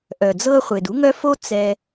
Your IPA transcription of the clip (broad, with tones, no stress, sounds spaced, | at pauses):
ʔ œ˩ d͡z ɤ˦ χʷ e˩ d u˥ ŋ œ˥ f o˥ t͡s ɛ˨